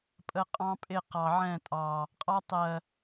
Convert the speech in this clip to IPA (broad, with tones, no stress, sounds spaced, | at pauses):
pʼ ə˦˨ qʼ ɑ̃˦ pʼ ɪ˦˨ q ɑ˨ ʕ ɛ̃˦˨ tʼ ɑ˨ | qʼ ɑ˦ tˤ ɜ˨